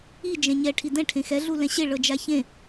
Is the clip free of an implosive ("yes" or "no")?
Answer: yes